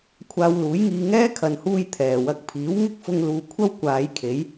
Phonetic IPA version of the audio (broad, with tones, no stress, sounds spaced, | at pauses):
kʷʰ aː˧ w l uː˨˥ j ŋ iː˧ ŋ ɛː˥ kʰ ɐ˨ n h uː˧ j t̪ʰ ɛː˨˩ w ɐ˧ k̚ pʰ iː˨˥ w ŋ ɪ˥ k̚ f ʊ˧ ŋ l uː˨ kʷʰ ɐ˥ w kʷ aː˨˧ j kʰ e˨˥ j